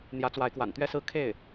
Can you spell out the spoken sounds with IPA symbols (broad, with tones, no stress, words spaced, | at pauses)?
n̪jä˧˥t͡swa˧˥ɪ̯kwa̰˨˩n t̪ɥɛ˥sɹ̩˥˧ kʰe˥˩ɪ̯